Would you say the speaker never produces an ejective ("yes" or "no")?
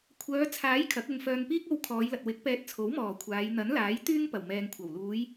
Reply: yes